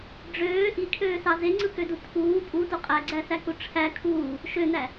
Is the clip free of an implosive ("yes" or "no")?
yes